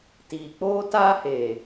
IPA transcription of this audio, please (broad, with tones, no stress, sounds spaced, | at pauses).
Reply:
t iː˨ k͡p oː˦ t aː˦ h eː˨